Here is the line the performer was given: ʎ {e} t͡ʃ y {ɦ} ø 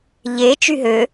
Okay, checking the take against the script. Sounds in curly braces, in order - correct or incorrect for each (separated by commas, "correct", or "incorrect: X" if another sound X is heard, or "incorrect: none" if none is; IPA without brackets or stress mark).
correct, correct